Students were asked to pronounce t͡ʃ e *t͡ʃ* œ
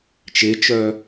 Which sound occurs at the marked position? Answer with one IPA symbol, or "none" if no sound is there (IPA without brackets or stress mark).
t͡ʃ